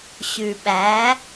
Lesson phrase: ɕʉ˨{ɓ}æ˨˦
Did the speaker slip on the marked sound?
no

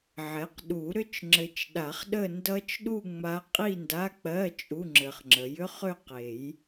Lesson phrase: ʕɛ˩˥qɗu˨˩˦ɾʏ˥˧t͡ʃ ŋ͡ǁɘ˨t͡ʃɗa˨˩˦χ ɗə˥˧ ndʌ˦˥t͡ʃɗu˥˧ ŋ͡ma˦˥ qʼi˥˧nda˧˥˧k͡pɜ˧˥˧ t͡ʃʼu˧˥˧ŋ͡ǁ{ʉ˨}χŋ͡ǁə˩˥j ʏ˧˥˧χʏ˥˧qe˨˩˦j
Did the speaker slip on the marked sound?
yes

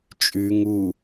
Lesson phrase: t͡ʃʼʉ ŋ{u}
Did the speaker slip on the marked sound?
no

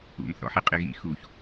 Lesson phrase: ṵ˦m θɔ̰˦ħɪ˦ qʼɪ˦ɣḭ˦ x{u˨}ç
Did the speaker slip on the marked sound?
no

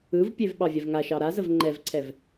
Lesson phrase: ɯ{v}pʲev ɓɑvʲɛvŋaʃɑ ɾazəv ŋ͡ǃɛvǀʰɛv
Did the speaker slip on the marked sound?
no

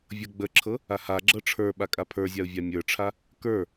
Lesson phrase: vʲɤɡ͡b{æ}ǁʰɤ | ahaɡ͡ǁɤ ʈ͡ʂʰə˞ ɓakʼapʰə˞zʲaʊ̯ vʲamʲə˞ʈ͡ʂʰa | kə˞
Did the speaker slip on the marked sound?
yes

